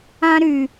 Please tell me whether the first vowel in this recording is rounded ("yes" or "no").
no